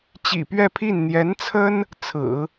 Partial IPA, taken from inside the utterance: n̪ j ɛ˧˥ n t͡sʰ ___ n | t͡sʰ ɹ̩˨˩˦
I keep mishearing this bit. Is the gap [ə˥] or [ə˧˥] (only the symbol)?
ə˥